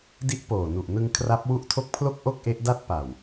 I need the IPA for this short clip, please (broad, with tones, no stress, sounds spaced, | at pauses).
d i˦˥ ʔ p oː˨˩ n u˨˩ ʔ n ɯ˧ ŋ kʰ r a˦˥ p̚ w u˦˥ ʔ tʰ o˦˥ k̚ pʰ l o˥˩ k̚ ʔ o˥˩ k̚ ʔ e˦˥ ʔ d a˥˩ t̚ p a˨˩ w